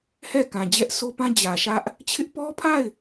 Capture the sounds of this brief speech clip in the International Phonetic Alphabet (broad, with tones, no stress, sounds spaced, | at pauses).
h ɛ˦˨ k ã˨ d͡ʑ ɛ˦ ʔ s o˦ p ã˦ d͡ʑ ä˨ ʃ ä˦ ʔ | t͡ɕʰ ɪ˦ ʔ p ɔ˦ pʰ a˦˨ ɪ̯